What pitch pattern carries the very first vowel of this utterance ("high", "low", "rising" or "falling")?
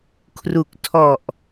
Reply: low